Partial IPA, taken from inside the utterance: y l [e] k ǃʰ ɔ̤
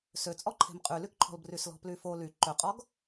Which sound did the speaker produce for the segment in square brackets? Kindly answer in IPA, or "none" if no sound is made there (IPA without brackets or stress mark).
y